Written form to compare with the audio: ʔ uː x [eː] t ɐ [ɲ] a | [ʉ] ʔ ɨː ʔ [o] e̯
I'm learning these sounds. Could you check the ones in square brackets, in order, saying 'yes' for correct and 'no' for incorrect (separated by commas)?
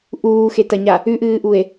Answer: no, yes, yes, no